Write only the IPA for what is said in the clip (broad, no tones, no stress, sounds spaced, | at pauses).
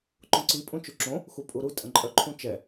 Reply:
ǃ õ ǀ i pʼ ũ t͡ʃ u ǁ õ | x u pʼ u ɾ u tʼ ə̃ ǃʼ œ ǃʰ ũ t͡ʃ ɛ